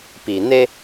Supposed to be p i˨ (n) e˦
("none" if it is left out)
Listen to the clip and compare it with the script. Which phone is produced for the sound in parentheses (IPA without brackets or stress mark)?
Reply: n